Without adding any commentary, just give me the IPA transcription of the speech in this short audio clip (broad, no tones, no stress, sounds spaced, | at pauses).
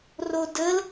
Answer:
r o d ə l